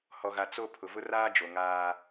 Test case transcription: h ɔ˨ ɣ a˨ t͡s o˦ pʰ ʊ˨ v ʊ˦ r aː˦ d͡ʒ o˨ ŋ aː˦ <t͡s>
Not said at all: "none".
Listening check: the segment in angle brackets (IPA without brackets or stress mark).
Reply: none